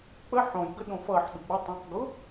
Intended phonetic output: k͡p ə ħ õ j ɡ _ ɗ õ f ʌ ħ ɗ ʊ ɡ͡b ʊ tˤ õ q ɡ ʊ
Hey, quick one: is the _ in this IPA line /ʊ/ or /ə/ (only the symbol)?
ə